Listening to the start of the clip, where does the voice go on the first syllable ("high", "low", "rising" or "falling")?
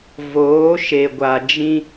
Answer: rising